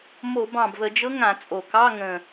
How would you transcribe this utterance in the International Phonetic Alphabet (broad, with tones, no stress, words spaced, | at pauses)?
mo˧˩˧bɑ̃˨˩bvə˧˩˧d͡ʒɤ˧˥ ŋã˧˩˧t͡sʼo˨˩kɑ˧˥˧ŋə̃˨˩